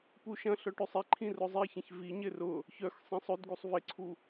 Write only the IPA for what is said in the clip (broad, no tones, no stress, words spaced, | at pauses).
puʃɐ̃ɬœʈ øsˤiǃʰĩ rʊzˤiçẽç viɲɪ rʊ | çœx sˤẽsˤødɡusˤ vɪǀʰu